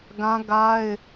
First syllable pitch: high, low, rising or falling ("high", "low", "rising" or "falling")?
high